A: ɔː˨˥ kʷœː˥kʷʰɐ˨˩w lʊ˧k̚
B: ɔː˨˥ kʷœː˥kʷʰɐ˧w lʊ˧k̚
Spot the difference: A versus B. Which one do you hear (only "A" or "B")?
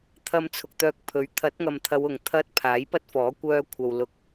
B